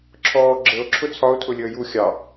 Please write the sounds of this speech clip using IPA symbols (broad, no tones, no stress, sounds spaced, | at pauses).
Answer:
ǁʰ ɔː ɡ͡ǁ ə o̯ ǁʰ ʊ t͡sʰ ɒ o̯ tʰ ʊ lʲ əː j u xʲ ɑ